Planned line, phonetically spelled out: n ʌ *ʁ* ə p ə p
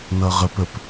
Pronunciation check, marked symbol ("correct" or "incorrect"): correct